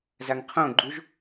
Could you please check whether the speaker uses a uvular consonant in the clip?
yes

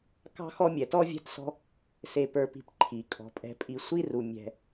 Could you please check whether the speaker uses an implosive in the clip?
no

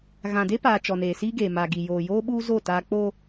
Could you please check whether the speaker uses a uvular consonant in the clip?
no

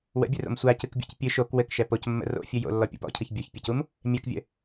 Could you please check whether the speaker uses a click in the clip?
no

